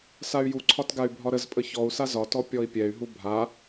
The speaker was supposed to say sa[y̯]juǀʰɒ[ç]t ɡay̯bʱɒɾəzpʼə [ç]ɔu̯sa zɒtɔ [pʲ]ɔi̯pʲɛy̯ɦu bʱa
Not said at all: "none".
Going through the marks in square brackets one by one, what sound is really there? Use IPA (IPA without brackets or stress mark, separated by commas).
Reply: y̯, none, ç, pʲ